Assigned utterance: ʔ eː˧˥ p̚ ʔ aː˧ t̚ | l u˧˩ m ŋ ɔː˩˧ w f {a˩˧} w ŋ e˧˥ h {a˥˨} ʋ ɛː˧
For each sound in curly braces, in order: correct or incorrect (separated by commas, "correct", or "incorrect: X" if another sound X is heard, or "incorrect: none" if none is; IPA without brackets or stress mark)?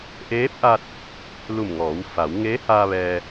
correct, incorrect: a˧